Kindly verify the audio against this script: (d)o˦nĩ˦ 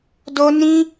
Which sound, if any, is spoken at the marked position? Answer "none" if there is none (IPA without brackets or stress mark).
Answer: d